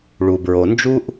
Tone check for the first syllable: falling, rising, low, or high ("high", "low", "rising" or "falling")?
low